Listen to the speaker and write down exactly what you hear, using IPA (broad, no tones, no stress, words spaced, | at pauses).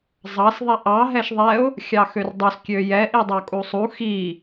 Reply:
zˤɑs ðˤiʔɑ ɦɛʃðˤɛʊ̯ | xʲɑxørdˤus kʲøjɛ ʔidˤɑkʼusˤu xi